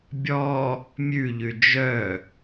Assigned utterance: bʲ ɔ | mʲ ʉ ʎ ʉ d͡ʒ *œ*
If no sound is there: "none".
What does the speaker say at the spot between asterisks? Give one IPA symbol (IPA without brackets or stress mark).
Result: œ